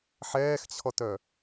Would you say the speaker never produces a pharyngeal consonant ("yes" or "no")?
no